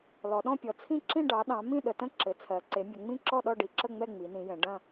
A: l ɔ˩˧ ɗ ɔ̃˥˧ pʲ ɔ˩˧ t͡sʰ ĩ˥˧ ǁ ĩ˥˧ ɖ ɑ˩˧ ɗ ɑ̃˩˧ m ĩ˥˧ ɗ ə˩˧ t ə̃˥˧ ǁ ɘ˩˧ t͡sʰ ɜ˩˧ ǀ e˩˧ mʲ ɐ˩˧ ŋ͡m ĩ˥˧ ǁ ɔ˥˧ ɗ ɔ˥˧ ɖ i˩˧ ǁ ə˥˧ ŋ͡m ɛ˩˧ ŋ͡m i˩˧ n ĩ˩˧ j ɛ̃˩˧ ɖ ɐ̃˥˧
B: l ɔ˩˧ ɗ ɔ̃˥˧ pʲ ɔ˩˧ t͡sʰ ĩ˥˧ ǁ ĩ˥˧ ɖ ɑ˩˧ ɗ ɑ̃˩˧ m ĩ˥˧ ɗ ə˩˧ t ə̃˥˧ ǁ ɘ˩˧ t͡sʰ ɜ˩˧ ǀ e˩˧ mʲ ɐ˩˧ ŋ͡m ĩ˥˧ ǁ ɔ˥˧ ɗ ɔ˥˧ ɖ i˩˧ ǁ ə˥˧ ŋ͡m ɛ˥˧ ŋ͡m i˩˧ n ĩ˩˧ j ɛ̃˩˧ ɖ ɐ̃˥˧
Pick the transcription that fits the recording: B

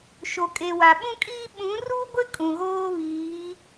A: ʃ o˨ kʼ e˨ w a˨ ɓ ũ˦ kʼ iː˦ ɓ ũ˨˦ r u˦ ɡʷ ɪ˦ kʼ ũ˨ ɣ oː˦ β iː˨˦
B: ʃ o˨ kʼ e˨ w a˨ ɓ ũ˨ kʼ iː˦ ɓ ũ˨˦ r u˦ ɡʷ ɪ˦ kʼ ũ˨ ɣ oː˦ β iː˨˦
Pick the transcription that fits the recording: A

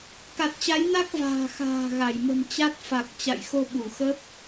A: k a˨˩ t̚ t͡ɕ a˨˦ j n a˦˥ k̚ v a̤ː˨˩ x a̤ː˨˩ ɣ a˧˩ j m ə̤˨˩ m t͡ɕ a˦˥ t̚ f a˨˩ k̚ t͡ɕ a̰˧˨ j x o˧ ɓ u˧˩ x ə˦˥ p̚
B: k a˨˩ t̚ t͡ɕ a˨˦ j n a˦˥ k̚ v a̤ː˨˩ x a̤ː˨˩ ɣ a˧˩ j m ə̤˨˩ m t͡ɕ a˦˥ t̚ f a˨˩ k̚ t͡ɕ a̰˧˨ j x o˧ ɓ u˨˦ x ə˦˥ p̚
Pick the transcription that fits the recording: A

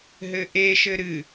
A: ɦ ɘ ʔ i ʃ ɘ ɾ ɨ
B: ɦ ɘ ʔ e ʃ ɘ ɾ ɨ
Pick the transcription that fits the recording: B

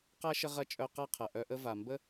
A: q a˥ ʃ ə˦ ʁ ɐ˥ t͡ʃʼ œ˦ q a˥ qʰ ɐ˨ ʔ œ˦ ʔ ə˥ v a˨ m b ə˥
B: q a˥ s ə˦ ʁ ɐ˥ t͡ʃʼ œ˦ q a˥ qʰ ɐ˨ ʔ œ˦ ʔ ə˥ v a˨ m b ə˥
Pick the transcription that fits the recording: A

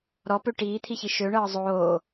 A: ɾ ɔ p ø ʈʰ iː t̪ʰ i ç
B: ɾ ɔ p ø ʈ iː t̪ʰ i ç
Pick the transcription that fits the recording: B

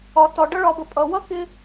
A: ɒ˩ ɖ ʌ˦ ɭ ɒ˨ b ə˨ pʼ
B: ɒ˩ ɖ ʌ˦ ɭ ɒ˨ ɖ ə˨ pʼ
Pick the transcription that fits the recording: A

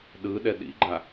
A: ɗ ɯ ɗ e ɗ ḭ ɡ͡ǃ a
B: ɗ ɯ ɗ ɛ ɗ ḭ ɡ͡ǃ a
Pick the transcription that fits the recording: B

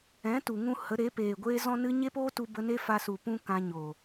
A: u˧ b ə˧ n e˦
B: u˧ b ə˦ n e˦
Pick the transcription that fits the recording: A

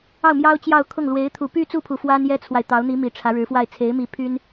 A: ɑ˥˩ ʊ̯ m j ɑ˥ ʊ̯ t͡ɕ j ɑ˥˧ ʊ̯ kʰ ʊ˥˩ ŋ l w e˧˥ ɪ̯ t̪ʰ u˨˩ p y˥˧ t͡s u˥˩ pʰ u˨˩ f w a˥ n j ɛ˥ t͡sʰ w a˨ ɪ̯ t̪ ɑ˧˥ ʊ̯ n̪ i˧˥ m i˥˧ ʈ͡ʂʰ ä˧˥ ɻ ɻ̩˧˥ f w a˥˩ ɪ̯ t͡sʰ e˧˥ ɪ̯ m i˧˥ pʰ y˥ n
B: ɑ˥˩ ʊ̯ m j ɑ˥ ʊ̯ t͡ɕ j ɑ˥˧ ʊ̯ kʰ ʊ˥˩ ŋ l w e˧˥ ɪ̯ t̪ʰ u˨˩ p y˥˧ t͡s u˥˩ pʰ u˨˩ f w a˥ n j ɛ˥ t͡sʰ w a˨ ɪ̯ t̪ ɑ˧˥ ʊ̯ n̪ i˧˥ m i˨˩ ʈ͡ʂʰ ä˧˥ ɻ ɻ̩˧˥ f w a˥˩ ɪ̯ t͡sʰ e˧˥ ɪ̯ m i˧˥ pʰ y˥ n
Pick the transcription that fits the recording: B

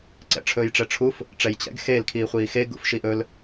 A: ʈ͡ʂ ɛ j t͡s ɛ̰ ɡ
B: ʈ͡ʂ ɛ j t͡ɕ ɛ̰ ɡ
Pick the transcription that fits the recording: B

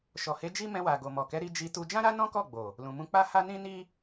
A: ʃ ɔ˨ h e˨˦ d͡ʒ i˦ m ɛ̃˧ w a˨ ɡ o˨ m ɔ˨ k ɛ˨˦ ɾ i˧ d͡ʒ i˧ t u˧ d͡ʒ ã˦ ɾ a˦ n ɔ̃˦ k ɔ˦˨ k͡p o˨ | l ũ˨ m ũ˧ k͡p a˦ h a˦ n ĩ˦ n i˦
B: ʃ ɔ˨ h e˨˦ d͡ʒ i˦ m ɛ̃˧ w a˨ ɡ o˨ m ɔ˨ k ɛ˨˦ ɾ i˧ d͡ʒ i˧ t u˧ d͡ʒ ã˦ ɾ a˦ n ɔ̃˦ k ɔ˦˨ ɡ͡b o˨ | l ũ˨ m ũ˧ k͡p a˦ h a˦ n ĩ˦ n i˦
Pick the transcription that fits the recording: B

